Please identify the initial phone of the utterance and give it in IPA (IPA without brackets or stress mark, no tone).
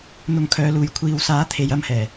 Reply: n̪